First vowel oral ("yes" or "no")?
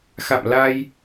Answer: yes